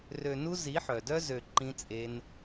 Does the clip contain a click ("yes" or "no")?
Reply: yes